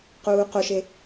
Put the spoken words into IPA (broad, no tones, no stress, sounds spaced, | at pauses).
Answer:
q uː q o ʃ e